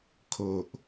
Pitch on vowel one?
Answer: low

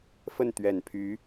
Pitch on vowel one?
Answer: falling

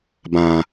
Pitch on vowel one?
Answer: low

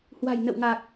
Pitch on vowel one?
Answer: low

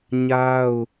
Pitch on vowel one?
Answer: high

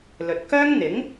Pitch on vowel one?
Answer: low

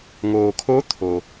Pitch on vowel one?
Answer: low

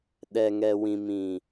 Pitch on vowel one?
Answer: low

